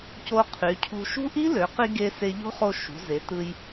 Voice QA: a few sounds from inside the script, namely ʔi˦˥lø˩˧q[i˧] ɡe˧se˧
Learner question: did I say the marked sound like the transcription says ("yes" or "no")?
yes